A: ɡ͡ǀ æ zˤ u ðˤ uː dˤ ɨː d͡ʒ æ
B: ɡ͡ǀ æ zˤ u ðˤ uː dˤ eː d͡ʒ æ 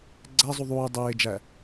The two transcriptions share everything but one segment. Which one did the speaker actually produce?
B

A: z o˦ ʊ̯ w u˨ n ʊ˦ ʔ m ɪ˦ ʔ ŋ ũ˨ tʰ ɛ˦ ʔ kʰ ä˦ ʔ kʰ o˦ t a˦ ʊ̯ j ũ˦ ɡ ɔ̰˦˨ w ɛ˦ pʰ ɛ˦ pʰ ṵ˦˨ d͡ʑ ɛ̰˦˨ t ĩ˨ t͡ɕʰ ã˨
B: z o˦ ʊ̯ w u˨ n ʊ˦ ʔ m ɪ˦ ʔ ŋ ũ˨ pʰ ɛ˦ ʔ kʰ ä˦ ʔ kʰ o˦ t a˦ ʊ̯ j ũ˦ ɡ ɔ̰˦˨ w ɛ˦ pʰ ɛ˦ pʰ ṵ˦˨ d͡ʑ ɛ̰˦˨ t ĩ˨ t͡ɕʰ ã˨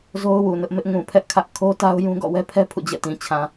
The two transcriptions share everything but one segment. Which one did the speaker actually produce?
B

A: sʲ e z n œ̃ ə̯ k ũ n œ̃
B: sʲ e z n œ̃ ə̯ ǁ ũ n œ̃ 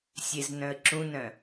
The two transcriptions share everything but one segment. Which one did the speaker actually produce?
B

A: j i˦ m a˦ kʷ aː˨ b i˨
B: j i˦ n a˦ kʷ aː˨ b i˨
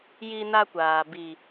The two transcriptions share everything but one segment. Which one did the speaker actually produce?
B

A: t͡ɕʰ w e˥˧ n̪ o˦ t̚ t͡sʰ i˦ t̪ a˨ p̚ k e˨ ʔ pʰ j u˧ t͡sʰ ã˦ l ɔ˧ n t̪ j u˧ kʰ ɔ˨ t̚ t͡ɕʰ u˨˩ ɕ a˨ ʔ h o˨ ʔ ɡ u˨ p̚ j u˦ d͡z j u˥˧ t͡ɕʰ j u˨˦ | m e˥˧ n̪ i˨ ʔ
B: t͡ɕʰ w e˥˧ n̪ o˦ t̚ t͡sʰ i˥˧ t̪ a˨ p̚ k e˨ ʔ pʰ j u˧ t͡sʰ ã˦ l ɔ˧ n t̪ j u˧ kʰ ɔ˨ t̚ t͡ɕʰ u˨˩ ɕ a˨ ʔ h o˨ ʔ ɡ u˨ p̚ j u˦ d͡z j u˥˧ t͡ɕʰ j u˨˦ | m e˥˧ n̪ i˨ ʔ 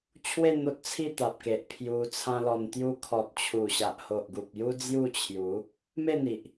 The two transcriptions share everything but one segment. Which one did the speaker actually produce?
B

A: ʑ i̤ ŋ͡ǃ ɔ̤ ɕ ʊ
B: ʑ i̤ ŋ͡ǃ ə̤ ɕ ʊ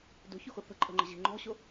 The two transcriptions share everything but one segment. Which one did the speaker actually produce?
A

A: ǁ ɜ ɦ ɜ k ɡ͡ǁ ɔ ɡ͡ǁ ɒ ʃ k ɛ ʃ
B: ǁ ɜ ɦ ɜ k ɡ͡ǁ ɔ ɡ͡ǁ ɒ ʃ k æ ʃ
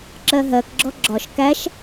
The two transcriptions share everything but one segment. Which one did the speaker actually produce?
B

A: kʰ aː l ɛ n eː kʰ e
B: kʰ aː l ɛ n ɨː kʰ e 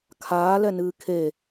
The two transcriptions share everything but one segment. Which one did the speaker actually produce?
B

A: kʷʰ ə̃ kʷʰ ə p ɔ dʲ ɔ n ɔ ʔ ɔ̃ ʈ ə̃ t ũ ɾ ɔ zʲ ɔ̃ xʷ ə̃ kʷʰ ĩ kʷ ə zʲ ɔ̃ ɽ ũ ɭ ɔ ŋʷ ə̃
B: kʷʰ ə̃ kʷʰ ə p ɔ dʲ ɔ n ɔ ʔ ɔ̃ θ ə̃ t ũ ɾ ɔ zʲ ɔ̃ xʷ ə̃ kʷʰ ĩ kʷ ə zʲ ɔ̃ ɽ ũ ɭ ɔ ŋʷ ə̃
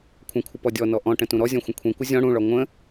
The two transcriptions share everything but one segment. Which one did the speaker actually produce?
A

